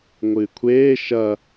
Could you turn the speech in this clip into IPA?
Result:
ŋʷ ɨː kʷʰ eː ʃ ɐ

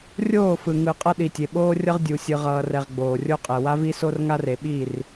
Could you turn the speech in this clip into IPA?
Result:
rʲ oː˦˨ f ɯ˨ ŋ ɯ˨ qʼ ʌ˦ ɗ i˨ tʲ e˨ ɓ oː˦ rʲ ʌ˦ ʁ dʲ u˨ sʲ ɯ˨ ʁ ʌː˨ r ɛ˨ ʁ ɡ͡b oː˨ rʲ o˦ qʼ ɛ˨ w a˦ v i˦ s o˦ r ŋ a˦ r e˨ ɓ i˦˨ r

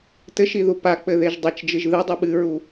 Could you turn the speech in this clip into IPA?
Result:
t ɘ ʃ i ð u p a k͡p ɘ ð e ʒ dˤ ɐ t͡ʃ d͡ʒ ɨ ʒ ð ɨ dˤ ɨ ɓ ɨ ɹ u

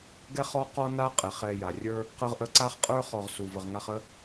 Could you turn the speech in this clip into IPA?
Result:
ɡ ɛ˦ χ ɔ˦ q ɔ˦ n a˦ qʼ ɛ˩ χ ɛ˨ j a˩ rʲ ə˞˥ | q ə˦ ʁ ʔ ə˦ ǀ a˥ χ qʼ ə˞˥ χ ɔ˨ ʁ s u˩ v ə˨ ʁ ŋ a˦ χ ə˦

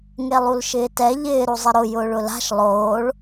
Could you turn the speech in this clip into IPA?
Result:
ŋ e lˠ u l ʃ ɪː t ɛ ʎ ɪː ɾ u zˤ ɪ ɾ ʊ j ʊː ɭ ʊ l a̤ ʃ lˠ oː ɭ

